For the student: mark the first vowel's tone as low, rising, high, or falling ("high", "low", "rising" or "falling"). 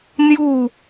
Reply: falling